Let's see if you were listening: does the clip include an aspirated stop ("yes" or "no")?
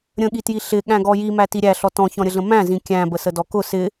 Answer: no